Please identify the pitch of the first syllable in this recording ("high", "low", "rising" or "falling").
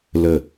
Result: falling